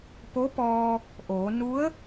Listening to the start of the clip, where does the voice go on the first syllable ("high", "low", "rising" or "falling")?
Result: rising